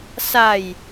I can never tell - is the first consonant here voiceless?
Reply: yes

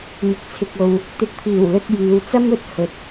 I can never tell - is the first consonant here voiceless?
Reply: no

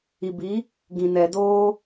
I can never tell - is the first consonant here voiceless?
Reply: no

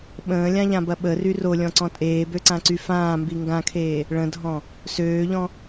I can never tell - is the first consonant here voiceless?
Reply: no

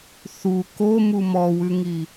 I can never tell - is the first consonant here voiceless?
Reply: yes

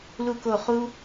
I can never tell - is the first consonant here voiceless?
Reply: no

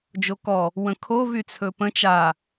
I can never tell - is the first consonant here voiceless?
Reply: no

